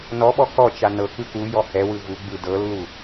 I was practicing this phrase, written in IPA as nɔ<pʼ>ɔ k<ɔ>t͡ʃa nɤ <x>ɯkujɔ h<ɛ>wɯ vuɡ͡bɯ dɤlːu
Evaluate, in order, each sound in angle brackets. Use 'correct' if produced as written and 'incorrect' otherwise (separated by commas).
incorrect, correct, incorrect, correct